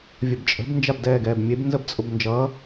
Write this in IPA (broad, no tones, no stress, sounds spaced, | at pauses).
vʲ ə b t͡ʃʼ ə̤ b n d͡ʒ a b d ɛː ɡ ɛː b mʲ e b n z ə b t͡sʼ ʊ b n d͡ʒ ʌ